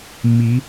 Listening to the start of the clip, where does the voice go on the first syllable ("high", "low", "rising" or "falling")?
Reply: rising